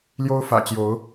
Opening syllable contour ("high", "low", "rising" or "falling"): high